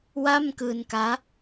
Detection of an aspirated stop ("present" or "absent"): absent